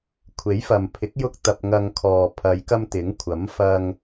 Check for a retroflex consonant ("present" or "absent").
absent